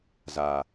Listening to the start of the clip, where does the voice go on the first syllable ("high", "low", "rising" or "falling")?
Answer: low